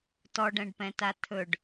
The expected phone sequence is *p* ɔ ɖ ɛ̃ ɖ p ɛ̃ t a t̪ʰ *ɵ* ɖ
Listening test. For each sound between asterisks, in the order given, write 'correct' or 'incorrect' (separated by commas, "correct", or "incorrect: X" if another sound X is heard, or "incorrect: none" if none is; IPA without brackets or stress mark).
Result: incorrect: t, correct